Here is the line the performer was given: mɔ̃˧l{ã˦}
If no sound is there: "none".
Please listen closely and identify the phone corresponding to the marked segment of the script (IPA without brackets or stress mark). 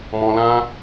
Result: ã˦